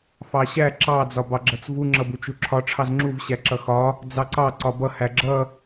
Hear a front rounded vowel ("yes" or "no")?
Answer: no